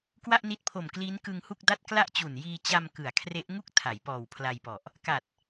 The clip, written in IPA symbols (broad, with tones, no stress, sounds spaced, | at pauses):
k w a˥˩ ʔ n i˦˥ t̚ pʰ o˨˩ m k l iː˦˥ n k ɯ˧ ŋ h u˥˩ k̚ d a˥˩ t̚ k l a˥˩ ʔ t͡ɕ u˨˩ n j iː˧ t͡ɕ a˧ m k ɯ˩˦ a̯ kʰ r e˦˥ ʔ ŋ u˦˥ k̚ tʰ a˩˦ j p ɔː˨˩ w pʰ l a˧ j p ɔ˨˩ ʔ | k a˨˩ t̚